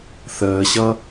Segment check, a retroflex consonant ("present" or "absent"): absent